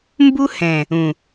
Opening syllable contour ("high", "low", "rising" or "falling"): high